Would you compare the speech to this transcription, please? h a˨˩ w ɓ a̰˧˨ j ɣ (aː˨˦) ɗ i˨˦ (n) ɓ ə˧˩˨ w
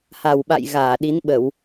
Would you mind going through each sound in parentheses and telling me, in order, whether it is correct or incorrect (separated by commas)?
incorrect, correct